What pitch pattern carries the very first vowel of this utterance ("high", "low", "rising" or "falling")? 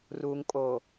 low